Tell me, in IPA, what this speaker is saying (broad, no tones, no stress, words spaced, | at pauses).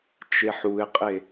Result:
t͡ʃeħuɪ̯qʼe